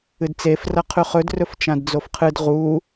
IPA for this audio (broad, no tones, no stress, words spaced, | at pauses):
ɨdt͡sef rɐqʰʉχɵd rɵft͡ʃãdd͡zofqʰɨd ʁu